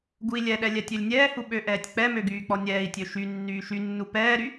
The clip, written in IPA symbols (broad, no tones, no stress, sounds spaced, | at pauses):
ɡ u i̯ lʲ ɛ ɗ ɛ lʲ ɛ tʲ ø lʲ nʲ ɛː h u ɓ ø ʔ ɛː tʲ k͡p ɛ m ø ɡ yː k͡p ɔ nʲ ɛː i̯ tʲ ø ʃ y nː yː ʃ y nː u p ɛː ɾ y